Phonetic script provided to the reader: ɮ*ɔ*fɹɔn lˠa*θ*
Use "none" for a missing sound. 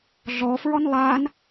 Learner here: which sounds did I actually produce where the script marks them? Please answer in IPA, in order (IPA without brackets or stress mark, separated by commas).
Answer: ɔ, n